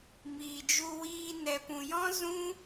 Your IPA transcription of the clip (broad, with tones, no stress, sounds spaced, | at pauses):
m iː˨ d͡ʒ u˧ w iː˧ n ɛ˨ p ũ˨ j ɔ̃˦ z ũ˦